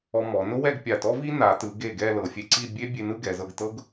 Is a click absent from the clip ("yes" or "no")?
no